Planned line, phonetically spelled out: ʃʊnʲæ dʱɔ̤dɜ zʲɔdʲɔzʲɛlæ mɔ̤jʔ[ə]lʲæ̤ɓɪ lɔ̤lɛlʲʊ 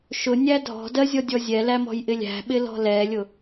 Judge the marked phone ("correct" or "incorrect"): incorrect